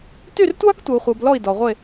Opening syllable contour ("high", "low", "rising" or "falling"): falling